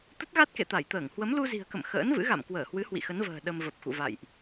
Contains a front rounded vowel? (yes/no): no